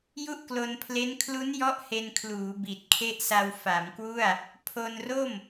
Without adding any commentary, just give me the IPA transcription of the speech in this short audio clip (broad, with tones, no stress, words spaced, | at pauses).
ju˥˩ʔklo˧npʰle˦˥n kʰlu˦˥njɔ˦˥ʔ he˧nkʰluː˩˦ bi˨˩t̚kʰe˦˥ʔsa˧w fa˩˦mkwu˥˩a̯ | pʰo˧nro˥˩m